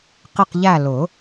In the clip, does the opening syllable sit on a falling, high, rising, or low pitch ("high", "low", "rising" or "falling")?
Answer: falling